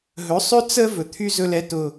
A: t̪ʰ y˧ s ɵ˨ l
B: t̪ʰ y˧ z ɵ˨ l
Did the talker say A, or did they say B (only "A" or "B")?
B